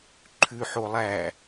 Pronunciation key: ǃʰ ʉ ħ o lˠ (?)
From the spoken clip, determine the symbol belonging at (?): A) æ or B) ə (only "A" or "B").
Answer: A